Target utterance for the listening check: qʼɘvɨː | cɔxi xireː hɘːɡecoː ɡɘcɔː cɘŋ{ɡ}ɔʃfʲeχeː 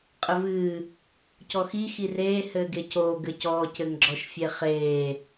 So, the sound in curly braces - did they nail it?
no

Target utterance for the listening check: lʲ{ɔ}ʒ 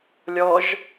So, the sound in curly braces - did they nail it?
yes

